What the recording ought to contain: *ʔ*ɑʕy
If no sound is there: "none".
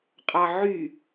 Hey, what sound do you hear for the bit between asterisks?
qʼ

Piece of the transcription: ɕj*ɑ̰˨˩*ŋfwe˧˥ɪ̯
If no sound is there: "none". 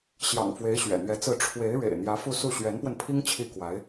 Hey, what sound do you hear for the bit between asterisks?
ɑ̰˨˩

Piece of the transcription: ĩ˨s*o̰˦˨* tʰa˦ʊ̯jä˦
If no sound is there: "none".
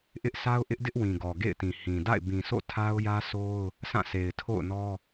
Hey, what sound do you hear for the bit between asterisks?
o̰˦˨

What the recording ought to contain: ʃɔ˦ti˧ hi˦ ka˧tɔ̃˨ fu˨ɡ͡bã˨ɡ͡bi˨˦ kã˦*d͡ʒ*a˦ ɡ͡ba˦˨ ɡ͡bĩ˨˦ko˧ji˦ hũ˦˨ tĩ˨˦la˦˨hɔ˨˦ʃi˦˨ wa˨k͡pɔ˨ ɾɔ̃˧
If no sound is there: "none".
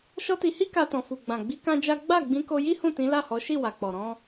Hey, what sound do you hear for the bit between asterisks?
d͡ʒ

